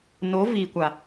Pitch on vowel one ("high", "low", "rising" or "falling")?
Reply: rising